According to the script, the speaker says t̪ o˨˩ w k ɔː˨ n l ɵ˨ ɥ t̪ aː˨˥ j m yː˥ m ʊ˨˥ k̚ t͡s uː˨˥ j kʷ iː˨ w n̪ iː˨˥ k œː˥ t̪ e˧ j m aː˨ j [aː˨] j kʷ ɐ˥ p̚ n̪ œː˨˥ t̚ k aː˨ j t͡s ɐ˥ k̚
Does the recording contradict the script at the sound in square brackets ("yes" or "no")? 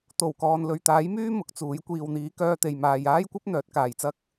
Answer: yes